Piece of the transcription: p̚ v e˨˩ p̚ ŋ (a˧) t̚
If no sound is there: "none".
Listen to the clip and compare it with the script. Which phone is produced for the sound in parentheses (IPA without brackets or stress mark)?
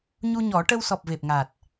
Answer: a˨˩